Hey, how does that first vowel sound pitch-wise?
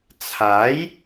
rising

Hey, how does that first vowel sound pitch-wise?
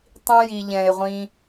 high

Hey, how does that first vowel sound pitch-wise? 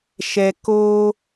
low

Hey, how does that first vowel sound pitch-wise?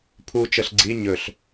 low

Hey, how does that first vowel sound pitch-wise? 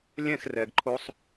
falling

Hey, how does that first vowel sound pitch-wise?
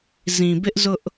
low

